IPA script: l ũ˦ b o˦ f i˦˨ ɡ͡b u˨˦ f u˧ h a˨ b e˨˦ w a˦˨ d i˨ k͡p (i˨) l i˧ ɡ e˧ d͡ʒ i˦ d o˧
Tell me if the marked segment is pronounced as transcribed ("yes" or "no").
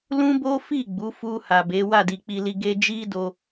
no